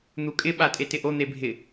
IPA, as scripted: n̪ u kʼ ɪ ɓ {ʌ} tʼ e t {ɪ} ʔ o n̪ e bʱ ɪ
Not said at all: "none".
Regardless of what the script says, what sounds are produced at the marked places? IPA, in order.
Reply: a, ɪ

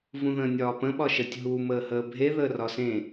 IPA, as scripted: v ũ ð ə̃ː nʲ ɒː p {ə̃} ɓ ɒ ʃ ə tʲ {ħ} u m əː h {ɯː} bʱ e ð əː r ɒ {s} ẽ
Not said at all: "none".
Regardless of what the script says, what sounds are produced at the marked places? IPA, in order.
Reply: ə̃, ɦ, əː, s

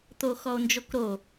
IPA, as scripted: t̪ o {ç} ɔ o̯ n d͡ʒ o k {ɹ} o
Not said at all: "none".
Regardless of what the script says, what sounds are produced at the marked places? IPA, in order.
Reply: x, ɾ

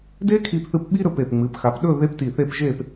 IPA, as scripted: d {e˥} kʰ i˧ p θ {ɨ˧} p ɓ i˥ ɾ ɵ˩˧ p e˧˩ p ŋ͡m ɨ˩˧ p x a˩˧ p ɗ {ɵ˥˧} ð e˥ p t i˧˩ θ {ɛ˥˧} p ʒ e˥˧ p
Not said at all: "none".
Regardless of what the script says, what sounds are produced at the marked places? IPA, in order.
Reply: e˥, ɨ˧, ɵ˥˧, e˥˧

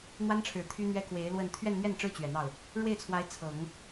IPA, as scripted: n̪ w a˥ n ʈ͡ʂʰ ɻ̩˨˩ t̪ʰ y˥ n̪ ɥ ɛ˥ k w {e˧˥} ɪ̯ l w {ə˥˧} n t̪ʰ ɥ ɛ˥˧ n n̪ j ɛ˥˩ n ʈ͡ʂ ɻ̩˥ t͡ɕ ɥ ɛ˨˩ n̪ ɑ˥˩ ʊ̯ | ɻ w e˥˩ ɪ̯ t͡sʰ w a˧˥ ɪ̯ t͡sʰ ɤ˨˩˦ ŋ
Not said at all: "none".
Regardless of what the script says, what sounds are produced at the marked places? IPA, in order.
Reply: e˧˥, ə˥˧

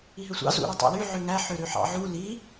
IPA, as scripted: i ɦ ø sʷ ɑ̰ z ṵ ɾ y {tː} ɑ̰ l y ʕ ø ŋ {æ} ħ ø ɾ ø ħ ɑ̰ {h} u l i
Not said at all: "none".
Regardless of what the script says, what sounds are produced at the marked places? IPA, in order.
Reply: tˤ, æ, ʕ

